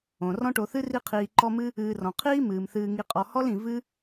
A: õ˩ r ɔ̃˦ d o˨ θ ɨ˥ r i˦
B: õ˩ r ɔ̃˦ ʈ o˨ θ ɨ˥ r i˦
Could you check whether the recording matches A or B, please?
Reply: B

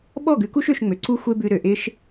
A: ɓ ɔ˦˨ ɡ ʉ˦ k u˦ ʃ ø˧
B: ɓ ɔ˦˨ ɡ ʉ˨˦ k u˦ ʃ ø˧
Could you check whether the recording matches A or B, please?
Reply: B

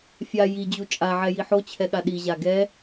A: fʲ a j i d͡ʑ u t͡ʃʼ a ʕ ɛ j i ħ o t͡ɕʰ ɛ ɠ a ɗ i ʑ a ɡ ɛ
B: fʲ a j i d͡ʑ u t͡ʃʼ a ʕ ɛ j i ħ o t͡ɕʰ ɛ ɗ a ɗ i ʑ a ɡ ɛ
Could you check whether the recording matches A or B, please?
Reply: A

